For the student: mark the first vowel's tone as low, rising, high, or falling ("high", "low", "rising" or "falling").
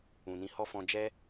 low